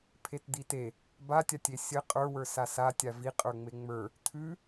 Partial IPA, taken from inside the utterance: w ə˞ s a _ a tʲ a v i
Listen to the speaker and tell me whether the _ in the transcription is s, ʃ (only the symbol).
s